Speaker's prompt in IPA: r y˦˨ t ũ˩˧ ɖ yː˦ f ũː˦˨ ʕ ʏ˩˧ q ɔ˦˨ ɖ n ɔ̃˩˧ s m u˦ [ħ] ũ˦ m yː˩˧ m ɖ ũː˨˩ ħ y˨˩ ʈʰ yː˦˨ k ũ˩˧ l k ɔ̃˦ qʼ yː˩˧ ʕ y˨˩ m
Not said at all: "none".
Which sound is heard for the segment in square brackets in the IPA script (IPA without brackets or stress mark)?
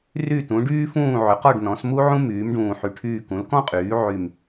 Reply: ʕ